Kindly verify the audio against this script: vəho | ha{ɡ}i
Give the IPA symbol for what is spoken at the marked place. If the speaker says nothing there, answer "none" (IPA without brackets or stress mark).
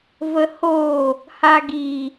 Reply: ɡ